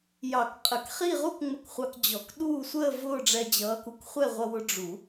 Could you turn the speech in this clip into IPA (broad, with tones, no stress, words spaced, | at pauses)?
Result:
jɑ˨˩˦kqʼə˨˩˦k χi˥˧ʁu˥kŋ͡mə˧k χʷɑ˧kd͡ʑɔ˨˩˦k ɗuː˥˧ sʷəː˥˧ vʊː˥˧ɖ͡ʐɛ˧ d͡ʑʌː˧˥ku˧k χʷɛ˥˧ʁʷʌ˧wʊ˧ ɖ͡ʐu˨˩˦